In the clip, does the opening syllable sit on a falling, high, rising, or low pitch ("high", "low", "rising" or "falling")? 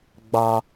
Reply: high